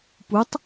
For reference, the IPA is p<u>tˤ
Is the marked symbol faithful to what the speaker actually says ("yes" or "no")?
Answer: yes